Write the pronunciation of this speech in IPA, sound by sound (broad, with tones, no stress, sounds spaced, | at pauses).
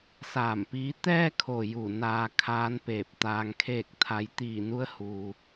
s aː˧˩ m p iː˧˥ t̪ ɛː˧ kʰ o˩ j u˧˩ n aː˧ kʰ aː˧˥ n p eː˧˩ p̚ t̪ aː˧ ŋ kʰ eː˥˨ k̚ t̪ʰ a˧˥ j t̪ iː˧˩ n u˧˥ ə̯ h u˧